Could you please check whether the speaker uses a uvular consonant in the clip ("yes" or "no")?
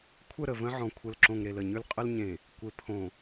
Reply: yes